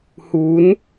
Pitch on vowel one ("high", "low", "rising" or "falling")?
rising